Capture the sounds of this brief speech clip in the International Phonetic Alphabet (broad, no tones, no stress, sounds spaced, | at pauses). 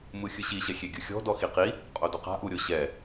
m ɯ xʲ ɯ ɕ i ɕ ɛ xʲ e ɡʲ ɯ xʲ ɔ̤ d ɔ x i q i | qʼ o d o q a̤ ʔ u ɾʲ o ɕ ɛ